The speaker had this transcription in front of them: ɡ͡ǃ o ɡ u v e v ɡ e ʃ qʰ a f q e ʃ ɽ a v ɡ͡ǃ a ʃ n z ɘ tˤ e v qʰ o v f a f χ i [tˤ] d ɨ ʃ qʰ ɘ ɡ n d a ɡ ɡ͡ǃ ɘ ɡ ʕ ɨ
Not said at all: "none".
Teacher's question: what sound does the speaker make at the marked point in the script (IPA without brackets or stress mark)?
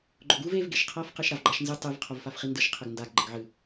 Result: n